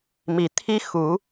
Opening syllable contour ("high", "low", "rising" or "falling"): low